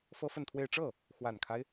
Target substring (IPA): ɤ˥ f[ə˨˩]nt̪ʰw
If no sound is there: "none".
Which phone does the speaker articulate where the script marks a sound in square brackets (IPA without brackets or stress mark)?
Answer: ə˥˧